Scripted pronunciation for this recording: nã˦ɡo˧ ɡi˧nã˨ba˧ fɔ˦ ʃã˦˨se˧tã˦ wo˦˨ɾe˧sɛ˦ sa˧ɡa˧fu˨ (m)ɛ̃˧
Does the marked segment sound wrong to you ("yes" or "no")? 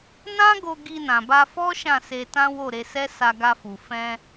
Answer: yes